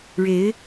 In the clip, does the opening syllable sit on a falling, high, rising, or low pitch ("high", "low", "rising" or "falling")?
rising